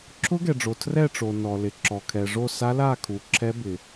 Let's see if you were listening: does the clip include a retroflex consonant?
yes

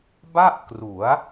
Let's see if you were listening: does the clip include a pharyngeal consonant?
no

